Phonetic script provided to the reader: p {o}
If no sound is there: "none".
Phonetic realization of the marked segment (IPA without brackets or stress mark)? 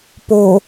o